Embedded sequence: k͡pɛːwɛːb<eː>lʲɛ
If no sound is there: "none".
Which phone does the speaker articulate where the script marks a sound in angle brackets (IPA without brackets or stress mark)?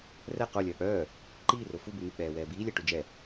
iː